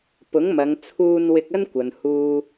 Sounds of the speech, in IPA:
p ʊ˨˥ ŋ m ɐ˨˧ ŋ t͡sʰ uː˧ n w ɪ˧ k̚ ɐ˥ n kʷ ɐ˨ n h uː˨

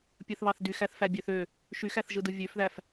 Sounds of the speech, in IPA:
pʲ ɯ θ β ɑ θ d y x æ θ f æ bʲ ø θ ø | ʃ y x æ θ ʒ ɯ d ɯ vʲ ø f ð æ f

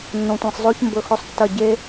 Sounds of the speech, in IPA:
nː õ˨ tʷ ẽ˨ sˤ zˤ o˦ ç m b ɵ˧ x ɵ˧ sˤ tː ɐ˦˨ ɟ e˦

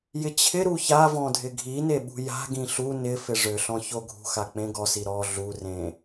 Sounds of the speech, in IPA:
j ɪ t͡ɕʰ ɪ ɾ u ç a v ɔ̃ dʱ ɪ ɡʱ i n e ɓ ṳ j a̤ ɡ ĩ ɬ u n ɪ f ɪ ʐ ʏ ɬ ɔ̃ ç o ɡʱ ṳ x a k͡p ẽ ɡ ɔ s i ɾ ɔ ɮ u r ẽ

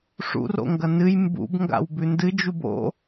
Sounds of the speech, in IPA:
ʂ ṵ r o̰ ŋ ɡ ɐ n ɨ j m b ṵ b ŋ ɡ a̰ w b ʉ n d ɨ d͡ʒ u b o̰

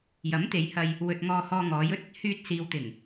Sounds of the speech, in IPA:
j ɐ˨˥ m t̪ e˨˧ j h ɐ˧ j | w ɵ˨ t̚ ŋ ɔː˧ h ɔː˧ ŋ ɔː˨˧ j ɵ˥ t̚ | h yː˧ t̚ s iː˨ w t̪ ɪ˨˩ ŋ

